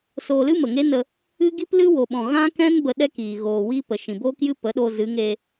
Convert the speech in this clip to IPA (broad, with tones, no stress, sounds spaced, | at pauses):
s oː˧ l ɨ˦ m ə˨ ŋ e˦ n ə˧ | ɨ˦ ɡ i˦ p l ɨ˦ w o˨ ɓ ɔ̃˨ ɣ ã˦ k ɛ̃˦ n b ə˦ ɗ ɛ˦ k iː˨ ɣ oː˨ w i˦ p ə˨ ʃ ĩ˨ b oː˦ k j ɨ˦ p ə˨˦ ɗ oː˧ z ɨ˨˦ ŋ eː˧